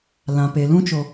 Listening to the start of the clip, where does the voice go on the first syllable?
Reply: low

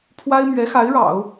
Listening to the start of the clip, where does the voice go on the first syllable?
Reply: high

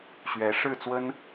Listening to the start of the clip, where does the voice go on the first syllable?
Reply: rising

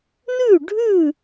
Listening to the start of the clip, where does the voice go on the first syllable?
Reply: falling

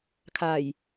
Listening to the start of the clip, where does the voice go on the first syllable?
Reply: low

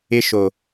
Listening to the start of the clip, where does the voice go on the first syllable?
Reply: high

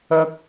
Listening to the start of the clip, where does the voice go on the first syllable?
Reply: high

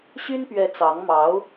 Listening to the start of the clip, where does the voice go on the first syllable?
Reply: high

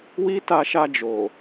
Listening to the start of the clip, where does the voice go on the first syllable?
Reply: high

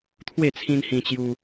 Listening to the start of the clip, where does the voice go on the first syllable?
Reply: falling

